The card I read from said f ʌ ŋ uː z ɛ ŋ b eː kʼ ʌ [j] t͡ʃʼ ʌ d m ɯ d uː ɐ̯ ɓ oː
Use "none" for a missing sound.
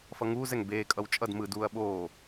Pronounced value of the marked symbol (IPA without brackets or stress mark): w